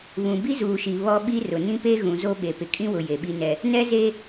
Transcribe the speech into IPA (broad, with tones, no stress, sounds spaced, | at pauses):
β ũ˨ b i˦ z uː˨ ʃ i˨ β ɔ˦ ɓ i˦ r ʊ˨ n ĩ˦ p e˦ ɣ ũ˨ z o˦ ɓ e˨ p ɪ˨ kʼ ĩ˦ w ʊ˨ j e˨ ɓ i˦ n ɛ˦ | n ɛ˦ z e˦